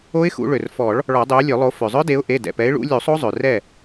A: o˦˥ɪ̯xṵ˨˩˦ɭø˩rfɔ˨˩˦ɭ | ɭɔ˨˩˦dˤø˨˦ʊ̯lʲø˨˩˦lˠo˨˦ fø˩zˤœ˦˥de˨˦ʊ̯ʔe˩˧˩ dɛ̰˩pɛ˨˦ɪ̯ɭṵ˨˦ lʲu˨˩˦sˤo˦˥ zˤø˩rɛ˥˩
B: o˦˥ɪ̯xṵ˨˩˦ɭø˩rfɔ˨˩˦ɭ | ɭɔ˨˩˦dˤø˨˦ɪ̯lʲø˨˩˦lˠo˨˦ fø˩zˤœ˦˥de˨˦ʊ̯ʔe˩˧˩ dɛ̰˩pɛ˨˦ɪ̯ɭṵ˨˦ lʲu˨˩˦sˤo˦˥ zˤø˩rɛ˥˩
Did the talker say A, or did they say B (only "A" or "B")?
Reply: A